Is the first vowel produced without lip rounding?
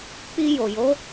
yes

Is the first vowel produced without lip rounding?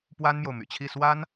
yes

